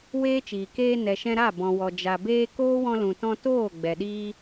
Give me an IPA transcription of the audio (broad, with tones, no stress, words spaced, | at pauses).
weː˦t͡ʃiː˨ keː˧ nɛ˨ʃɛ̃˧ ɾa˦˨ bɔ̃˨wɔ˨ d͡ʒa˨ beː˧ koː˦wɔ̃˧lũ˨tɔ̃˧ toː˦˨ ɡ͡bɛ˨ɗiː˦